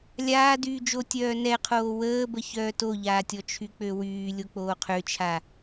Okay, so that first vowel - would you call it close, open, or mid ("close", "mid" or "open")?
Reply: open